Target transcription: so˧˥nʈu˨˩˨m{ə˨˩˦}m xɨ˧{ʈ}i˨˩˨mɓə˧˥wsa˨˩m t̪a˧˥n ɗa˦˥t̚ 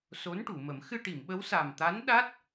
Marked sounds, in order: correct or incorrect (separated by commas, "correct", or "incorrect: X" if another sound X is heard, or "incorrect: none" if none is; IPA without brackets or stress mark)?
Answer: correct, correct